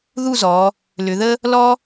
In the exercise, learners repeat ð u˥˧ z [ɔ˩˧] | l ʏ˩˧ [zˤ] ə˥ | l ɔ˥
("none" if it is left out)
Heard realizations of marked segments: ɔ˩˧, ð

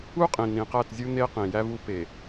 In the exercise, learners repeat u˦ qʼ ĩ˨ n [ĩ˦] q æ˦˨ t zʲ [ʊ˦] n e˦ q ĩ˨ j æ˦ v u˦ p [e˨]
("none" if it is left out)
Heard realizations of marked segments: ĩ˨, u˦, e˨

